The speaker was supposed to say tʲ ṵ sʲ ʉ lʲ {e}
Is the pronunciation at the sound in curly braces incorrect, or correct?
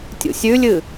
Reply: incorrect: ɨ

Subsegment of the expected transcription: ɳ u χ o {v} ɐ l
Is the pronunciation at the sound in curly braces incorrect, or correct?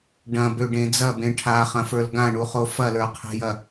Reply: incorrect: f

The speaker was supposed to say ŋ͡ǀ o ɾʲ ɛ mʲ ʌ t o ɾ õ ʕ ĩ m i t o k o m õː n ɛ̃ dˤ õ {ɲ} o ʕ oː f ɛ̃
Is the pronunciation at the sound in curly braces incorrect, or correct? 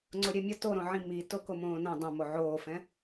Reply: incorrect: m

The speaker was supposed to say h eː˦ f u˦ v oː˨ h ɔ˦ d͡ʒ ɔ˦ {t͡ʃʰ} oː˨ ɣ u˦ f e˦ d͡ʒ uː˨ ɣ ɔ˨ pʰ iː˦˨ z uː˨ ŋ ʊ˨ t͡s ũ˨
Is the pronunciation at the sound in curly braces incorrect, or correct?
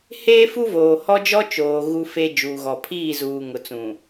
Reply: incorrect: t͡ʃ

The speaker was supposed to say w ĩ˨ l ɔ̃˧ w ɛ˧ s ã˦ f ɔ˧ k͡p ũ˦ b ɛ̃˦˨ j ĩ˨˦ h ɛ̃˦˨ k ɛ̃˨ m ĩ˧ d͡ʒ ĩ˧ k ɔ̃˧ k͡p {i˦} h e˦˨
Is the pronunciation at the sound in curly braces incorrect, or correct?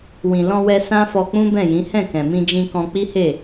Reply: correct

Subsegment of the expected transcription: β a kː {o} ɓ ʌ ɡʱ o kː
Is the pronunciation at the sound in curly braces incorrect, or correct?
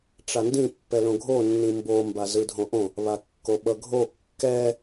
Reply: correct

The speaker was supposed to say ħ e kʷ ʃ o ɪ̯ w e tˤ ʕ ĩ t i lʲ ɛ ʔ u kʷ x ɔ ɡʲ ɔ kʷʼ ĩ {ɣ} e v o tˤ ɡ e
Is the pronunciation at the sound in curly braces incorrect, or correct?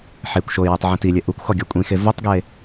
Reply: incorrect: x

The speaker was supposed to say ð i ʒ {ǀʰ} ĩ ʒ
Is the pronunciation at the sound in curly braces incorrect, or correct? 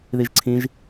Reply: correct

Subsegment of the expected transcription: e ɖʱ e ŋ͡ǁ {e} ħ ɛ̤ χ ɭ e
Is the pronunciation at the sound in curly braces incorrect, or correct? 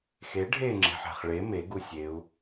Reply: incorrect: e̤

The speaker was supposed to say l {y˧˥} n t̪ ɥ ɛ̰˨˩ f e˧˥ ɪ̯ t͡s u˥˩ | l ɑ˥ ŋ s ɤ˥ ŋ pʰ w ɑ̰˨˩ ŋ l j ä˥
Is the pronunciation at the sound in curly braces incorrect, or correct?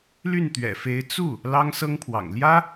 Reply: incorrect: y˥˩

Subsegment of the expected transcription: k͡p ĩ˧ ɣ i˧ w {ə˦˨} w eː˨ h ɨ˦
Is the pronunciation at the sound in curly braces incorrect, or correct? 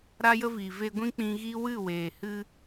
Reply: incorrect: ɨ˦˨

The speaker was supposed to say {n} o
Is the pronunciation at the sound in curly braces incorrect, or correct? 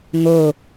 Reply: incorrect: ŋ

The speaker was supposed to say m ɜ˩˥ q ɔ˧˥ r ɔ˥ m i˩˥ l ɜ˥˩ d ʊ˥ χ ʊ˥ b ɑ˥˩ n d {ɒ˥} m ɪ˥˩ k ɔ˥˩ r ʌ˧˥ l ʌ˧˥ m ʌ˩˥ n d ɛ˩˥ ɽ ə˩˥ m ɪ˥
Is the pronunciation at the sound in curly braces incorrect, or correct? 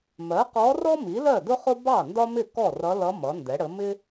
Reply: correct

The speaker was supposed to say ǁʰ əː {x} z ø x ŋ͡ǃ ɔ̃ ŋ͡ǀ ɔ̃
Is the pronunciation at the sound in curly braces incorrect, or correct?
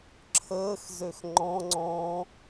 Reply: correct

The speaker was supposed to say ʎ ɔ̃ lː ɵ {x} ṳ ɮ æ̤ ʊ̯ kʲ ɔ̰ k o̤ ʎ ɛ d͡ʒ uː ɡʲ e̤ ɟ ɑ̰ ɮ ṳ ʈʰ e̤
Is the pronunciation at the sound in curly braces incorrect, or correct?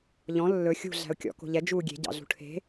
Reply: incorrect: xʲ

